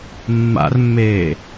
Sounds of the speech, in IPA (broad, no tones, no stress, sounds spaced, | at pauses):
mː a̰ r mː eː